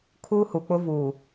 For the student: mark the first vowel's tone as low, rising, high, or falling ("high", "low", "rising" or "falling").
high